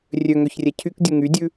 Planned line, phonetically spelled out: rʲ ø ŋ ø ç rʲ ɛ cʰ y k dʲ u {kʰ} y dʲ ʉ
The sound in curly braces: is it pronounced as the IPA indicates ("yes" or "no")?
no